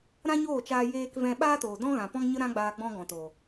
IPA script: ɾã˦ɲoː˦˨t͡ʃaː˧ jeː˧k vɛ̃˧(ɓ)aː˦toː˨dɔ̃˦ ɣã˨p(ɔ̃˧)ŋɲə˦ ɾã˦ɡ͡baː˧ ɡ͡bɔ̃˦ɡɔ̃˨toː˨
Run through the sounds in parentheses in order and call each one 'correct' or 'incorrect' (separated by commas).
correct, incorrect